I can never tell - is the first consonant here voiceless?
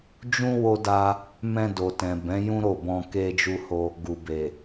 no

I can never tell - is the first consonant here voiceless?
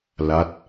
no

